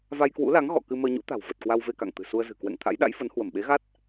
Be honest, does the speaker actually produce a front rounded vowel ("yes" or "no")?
no